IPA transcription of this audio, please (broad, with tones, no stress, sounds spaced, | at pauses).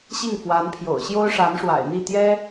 ɕ i˥˩ ŋ f w a˧˥ n pʰ j o̰˨˩ ʊ̯ ɕ j o˥ ʊ̯ ʂ a˧˥ n ʂ w a̰˨˩ ɪ̯ n̪ i˥˩ t̪ j ɛ˥